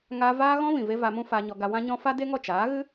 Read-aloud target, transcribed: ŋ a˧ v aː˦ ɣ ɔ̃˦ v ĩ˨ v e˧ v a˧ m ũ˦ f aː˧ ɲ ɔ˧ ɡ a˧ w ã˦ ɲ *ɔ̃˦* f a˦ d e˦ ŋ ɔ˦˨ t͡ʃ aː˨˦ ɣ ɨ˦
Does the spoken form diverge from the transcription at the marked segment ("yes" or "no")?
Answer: no